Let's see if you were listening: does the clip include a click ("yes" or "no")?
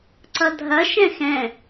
yes